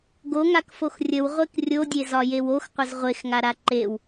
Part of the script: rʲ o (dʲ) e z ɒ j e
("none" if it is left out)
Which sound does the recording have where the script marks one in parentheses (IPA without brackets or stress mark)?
dʲ